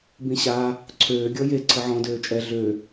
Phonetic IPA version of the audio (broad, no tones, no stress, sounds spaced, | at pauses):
b ĩ ɕ a | ǀʰ øː ɡʲ ɔ j e ǀʰ ə ʕ ɔ̃ d øː t͡ʃʼ ɛ ɮ ø